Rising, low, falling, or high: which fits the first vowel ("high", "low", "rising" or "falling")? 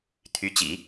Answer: rising